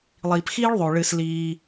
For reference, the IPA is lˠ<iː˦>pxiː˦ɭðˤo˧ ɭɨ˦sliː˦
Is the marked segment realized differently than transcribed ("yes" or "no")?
yes